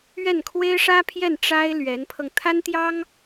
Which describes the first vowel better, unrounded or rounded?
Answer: unrounded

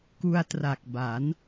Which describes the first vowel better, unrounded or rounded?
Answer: rounded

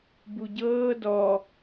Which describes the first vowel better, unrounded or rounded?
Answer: rounded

